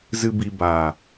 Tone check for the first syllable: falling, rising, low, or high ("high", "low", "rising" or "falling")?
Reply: low